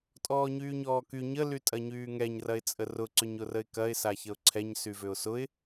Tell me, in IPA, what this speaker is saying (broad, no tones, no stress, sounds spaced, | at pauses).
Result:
tʼ ɔː ɲ yː ɲ ɔː k y ɲ ə l y tʼ ɐ ɲ yː ŋ ɛ ɲ r ɐ ɪ̯ t͡sʼ ə r ʊ ǀ ʏ ɲ ʊ r ə ɪ̯ k ɐ ɪ̯ s a ç ə ʊ̯ ǀʰ ɛ ɲ s y v ʏ ʊ̯ s ʊ ɪ̯